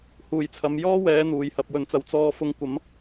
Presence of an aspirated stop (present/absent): present